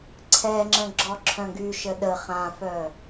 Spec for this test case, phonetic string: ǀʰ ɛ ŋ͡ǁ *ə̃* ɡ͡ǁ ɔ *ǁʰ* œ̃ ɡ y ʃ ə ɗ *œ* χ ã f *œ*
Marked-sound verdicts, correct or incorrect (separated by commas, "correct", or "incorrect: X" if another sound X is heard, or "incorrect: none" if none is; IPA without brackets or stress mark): correct, correct, incorrect: ə, correct